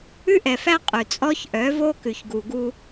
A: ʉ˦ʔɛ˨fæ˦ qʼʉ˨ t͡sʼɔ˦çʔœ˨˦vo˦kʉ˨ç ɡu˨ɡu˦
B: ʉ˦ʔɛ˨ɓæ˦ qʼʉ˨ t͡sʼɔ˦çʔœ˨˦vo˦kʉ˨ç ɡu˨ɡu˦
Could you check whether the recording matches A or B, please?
A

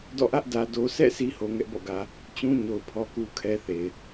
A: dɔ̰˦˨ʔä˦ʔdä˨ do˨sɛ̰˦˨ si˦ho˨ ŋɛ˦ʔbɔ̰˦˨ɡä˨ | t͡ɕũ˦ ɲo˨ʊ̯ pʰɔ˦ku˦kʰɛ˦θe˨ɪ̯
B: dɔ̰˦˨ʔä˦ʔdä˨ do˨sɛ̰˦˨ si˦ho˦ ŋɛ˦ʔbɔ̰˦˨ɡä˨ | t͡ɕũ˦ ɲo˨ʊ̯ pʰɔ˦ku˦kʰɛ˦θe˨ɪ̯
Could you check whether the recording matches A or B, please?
A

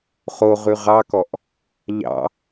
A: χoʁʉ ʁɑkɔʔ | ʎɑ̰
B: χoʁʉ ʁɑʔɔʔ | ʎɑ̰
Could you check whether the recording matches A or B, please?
A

